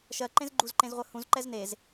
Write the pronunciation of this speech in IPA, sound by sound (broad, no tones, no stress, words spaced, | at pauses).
ʃɜǃẽz ɡ͡ǃuzǃẽzʁʷɜ hũzǃɛz nez